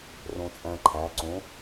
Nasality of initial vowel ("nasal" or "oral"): nasal